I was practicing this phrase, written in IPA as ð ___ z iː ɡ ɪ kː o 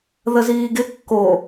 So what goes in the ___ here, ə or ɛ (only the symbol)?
ə